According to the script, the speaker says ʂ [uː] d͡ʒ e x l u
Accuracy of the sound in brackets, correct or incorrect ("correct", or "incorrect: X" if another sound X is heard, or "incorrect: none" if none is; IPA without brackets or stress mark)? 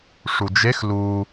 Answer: incorrect: u